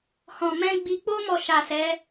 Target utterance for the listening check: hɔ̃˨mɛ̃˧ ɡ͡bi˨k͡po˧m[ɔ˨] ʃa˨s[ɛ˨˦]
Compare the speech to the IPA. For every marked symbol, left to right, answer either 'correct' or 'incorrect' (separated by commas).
correct, correct